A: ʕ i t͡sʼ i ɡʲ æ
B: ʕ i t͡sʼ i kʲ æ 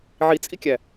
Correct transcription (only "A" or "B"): B